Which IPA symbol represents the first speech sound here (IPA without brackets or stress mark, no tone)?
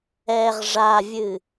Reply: ɛ